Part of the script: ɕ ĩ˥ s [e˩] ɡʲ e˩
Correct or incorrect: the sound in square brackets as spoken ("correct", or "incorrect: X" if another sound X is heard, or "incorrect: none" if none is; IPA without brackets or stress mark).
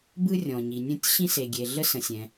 correct